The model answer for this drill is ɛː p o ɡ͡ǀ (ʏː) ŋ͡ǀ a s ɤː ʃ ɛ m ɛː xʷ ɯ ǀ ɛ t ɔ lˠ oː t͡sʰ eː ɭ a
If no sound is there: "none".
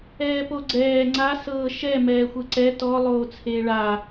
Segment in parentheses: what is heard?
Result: ɛː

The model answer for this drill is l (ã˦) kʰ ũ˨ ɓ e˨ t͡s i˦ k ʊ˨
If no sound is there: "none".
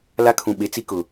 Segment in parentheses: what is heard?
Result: a˦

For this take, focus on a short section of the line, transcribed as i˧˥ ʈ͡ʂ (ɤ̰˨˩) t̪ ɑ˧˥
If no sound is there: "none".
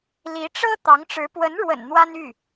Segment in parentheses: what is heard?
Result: ɤ˥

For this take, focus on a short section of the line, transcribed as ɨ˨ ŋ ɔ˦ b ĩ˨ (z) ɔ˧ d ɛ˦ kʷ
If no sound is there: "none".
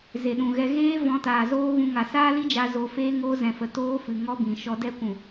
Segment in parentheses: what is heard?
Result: ʃ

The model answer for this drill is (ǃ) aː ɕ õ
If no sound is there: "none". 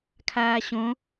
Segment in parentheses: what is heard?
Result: kʰ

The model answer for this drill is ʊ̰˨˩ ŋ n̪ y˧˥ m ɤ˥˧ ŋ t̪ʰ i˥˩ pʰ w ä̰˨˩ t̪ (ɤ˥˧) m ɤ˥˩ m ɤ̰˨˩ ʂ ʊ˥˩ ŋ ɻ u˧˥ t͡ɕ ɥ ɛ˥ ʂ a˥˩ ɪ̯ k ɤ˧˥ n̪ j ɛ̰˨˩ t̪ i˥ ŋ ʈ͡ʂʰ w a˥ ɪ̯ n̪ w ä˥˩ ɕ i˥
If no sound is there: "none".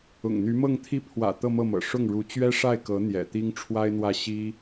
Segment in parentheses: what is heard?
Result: ɤ˥˧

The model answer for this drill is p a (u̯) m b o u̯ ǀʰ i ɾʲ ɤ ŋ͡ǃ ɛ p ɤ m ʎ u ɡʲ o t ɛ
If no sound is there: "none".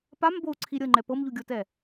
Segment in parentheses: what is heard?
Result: none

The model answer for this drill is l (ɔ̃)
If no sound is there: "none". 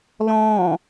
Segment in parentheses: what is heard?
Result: ɔ̃ː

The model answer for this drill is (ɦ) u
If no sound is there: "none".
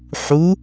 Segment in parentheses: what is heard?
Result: ħ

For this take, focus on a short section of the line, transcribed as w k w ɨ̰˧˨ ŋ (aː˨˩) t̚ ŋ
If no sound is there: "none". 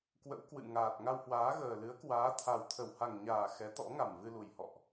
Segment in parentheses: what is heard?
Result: aː˨˩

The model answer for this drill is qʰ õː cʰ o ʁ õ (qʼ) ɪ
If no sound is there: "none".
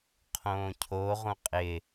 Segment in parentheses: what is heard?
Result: qʼ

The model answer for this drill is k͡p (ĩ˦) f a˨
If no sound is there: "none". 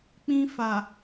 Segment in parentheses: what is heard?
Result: ĩ˦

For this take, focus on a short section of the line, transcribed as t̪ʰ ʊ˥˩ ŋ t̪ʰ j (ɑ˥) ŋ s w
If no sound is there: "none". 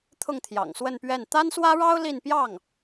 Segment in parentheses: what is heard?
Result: ɑ̰˨˩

